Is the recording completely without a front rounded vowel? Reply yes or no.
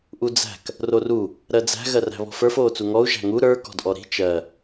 yes